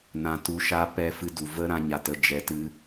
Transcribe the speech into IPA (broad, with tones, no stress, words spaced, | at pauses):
nã˧tu˧ʃa˦ pɛ˧fɨ˧du˨ və˦ ɾã˦ɲa˧tə˧ d͡ʒɛ˧tɨ˦